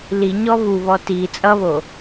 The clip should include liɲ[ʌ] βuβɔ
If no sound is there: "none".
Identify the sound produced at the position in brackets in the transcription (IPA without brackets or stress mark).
ɔ